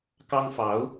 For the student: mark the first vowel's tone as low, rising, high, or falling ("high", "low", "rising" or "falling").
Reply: high